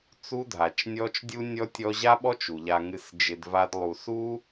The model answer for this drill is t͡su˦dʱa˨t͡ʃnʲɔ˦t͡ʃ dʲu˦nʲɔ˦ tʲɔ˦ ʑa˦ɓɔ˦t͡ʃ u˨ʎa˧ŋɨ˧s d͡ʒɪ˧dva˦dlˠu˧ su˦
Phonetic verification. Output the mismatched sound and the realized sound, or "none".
none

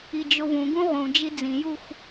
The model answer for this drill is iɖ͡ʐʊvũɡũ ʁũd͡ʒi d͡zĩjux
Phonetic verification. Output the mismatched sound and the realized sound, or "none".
ɖ͡ʐ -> d͡ʒ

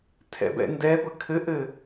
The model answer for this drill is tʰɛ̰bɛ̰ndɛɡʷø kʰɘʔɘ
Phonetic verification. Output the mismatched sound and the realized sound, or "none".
ø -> ɘ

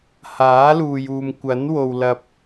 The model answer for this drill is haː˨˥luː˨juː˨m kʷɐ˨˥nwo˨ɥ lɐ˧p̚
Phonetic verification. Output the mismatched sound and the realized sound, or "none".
ɥ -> w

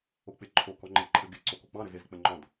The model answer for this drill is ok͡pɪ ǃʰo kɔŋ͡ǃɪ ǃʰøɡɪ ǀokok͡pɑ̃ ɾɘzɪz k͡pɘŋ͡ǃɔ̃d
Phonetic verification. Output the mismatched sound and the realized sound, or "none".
ø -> ɘ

